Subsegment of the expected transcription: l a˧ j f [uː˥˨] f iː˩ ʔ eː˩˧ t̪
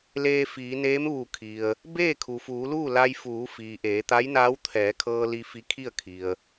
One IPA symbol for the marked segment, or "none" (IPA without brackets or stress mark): uː˩˧